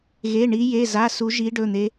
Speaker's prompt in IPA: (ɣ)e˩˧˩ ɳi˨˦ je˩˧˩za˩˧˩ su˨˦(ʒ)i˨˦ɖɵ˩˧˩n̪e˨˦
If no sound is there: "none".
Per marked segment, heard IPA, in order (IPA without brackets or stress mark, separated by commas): ɣ, ʒ